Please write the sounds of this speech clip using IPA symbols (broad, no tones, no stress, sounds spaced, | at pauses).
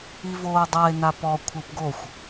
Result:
i v oː dˤ a e̯ n a p ɔ kʷʰ ɯ p ɡ o xʷ